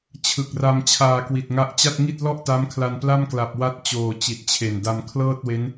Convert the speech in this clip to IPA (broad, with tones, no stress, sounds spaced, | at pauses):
t͡ɕʰ ɯ˨˩ k̚ r a˧ m t͡ɕʰ aː˧ k w i˨˩ t̚ ŋ a˦˥ ʔ t͡ɕ a˥˩ t̚ ŋ i˥˩ t̚ l ɔ˥˩ ʔ t a˦˥ m kʰ l a˧ n p l a˥˩ m k l a˨˩ p̚ w a˦˥ t̚ t͡ɕ oː˨˩ t͡ɕ i˨˩ t̚ t͡ɕʰ e˨˩ n d a˧ m kʰ l ɤː˥˩ t̚ w e˦˥ n